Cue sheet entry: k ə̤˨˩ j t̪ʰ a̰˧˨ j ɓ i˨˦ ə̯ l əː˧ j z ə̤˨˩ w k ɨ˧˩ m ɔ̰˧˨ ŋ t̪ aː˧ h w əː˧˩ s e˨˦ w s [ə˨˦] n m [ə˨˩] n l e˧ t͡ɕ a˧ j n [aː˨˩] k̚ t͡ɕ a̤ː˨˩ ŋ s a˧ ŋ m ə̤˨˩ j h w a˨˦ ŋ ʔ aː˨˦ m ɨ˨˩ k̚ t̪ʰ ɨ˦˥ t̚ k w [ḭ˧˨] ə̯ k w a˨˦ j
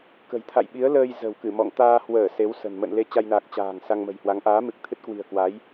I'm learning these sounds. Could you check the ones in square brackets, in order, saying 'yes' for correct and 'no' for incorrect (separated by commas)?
no, no, yes, no